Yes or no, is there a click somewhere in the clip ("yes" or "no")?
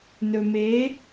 no